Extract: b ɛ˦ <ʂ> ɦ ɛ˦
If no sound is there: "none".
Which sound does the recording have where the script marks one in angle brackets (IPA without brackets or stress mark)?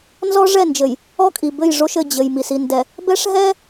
ʂ